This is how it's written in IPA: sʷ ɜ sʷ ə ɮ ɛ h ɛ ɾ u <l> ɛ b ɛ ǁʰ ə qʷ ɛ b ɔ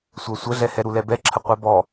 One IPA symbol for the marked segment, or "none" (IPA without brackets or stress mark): l